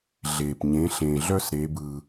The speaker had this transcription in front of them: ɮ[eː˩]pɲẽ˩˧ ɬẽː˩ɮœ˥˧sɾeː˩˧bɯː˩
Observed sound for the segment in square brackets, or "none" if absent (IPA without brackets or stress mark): eː˩